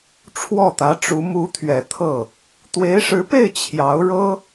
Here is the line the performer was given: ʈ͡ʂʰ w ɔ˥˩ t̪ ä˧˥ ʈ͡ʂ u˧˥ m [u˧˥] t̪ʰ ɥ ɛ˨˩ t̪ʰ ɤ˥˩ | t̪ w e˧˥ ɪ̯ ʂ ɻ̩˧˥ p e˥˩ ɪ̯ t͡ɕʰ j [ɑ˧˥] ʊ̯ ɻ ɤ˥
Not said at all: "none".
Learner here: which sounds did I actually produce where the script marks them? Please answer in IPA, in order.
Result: u˧˥, ɑ˧˥

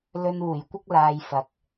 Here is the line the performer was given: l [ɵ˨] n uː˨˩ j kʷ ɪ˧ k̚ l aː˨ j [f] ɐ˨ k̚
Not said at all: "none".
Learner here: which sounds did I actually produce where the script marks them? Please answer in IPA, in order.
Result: ɵ˨, f

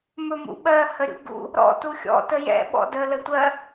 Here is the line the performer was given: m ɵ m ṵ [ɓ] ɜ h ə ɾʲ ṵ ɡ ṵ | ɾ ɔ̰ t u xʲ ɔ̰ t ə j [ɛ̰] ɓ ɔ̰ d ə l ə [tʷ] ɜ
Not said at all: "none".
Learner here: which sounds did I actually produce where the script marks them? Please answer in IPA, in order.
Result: ɓ, ɛ̰, tʷ

